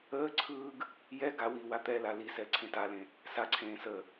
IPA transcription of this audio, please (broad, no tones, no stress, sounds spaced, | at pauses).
əː ǀʰ ɯː ɡ | j ɛ ɡ a w iː w a t̪ ɛ l a l i s ɛː ǀʰ ẽ t a l ẽ | s a ǀʰ ẽː s ə